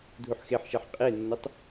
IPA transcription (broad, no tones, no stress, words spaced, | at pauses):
dʱuħxeħʃɛħ qʼenːɐtˤ